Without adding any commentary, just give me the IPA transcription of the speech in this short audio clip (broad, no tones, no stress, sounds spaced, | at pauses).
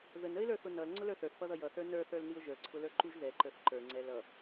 ð ə n ə ɪ̯ l ə˞ θ ʊ n ʌ l ŋ͡ǀ ʊ l ə˞ θ ə˞ θ p ʌ ð ʌ j ʌ θ ə˞ n ə˞ θ ə˞ l n i ʊ̯ ʒ ə˞ ǀʰ ʊ l ə˞ ǃ u ʒ ð ɛ ǃ ə˞ θ ǃ ə˞ ŋ͡ǀ ɛ l ʌ